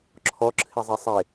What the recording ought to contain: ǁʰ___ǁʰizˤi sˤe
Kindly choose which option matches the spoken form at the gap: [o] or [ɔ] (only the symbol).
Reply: ɔ